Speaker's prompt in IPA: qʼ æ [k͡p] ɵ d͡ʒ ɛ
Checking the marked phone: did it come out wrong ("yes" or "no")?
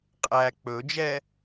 no